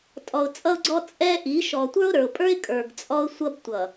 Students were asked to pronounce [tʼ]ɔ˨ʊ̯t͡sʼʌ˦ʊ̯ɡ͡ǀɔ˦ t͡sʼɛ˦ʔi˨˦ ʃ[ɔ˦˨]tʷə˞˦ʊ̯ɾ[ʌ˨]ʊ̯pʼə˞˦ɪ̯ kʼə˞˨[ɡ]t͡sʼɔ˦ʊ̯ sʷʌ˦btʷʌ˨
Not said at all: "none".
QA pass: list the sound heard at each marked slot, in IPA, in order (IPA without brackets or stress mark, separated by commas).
tʼ, ɔ˨, ə˞˨, ɡ